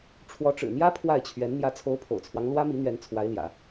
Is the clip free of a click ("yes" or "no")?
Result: yes